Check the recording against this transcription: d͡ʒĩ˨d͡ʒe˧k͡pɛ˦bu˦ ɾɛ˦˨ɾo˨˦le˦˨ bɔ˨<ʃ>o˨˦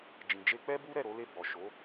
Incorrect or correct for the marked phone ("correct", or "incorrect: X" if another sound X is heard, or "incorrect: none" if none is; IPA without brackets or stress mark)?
correct